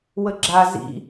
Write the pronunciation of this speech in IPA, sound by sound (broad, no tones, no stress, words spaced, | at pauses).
wəɡ͡ǁa zḭ